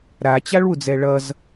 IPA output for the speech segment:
ɾ a t͡ɕ a ɭ w u d͡z ɛ ɭ ʌ z

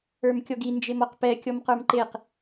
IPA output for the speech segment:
ə˞ m kʲ ɔ ɡ i n d͡ʒ e m ɔ q p ɛ kʲ ɔ m q ə˞ m ǃ e q

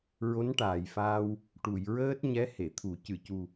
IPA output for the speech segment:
ɹ o˧˥ n ʈ aː˨˩ j f aː˧ w | ʈ u˨˩˨ j ɹ əː˦˥ t̚ ɲ ɛ˧˥ h e˨˩˨ t̪ʰ u˨˩˦ c ɨ˨˩˨ c u˨˩

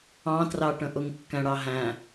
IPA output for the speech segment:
ɑ̃ t r ɑ ʈ ə̃ ʔ ʊ ŋ kː æ̃ ɽ ɑ ɦ æ̃

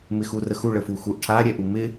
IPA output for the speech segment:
m ɪ x u r ə x u ɭ ə f u x u ʔ ʈʰ a ɾʲ ɛ ʔ u m ɪ

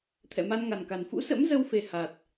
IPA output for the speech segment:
t̪ʰ ɛ̰˧˨ m a˧ n ŋ a˨˩ n k a˨˩ n f ṵ˧˥ s ə̰˧˥ m z ə˧ w f e˨˩ h a˨˩ t̚

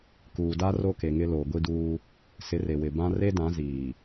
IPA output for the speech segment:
k uː˨ d a˦ r o˦ k e˨ ŋ ɪ˦ l o˨ ɡʷ i˦ d uː˦ | s ɪ˨˦ r e˨ w ɪ˨ b ã˦ r e˦ d ã˨˦ z iː˨

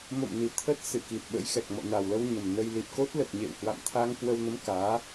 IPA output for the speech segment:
m o̰˧˨ m n i˨˩ t̪ʰ ə˦˥ t̚ s ɨ˧˩ k i˨˩ t̚ ɓ ə̰˧˥ j x ɛ˨˩ k̚ m ɔ̰˧˨ n a˨˩ w l ə˧ w ɲ ə˨˩ m n ə˧ j l i˨˩ p̚ k o˦˥ t̚ l ə˨˩ t̚ ɲ ḛ˧˨ w h w a̰˧˨ m t̪ʰ a˧ ŋ k w ə˧ w n ə˨˦ m k aː˨˦

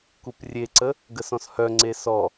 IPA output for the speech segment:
k u p rʲ e ǀ ə | ɡ ə s ɔ̃ s h œ ŋ͡ǀ e s ɔ

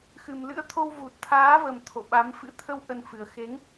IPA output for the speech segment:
x ɨ˨˩ m l ɨ̰˧˥ ə̯ t̪ʰ o˧ w v u˨˩ t̚ t̪ʰ aː˨˦ v ə˨˩ m t̪ʰ o̰˧˨ ɓ a˨˦ m f ɨ̰˧˥ t̪ʰ ə˧ w ʔ ə˧ n f ɨ˨˩ ə̯ x e˨˦ ŋ

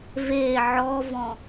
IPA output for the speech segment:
v e ʕ ɔ v ɔ̃

